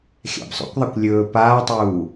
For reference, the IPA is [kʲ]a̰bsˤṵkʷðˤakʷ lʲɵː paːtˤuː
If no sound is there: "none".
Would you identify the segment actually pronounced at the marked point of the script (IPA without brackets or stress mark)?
xʲ